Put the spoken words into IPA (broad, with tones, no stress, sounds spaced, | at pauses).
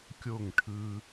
kʲ o˦˨ ŋ ʈʰ ɯː˧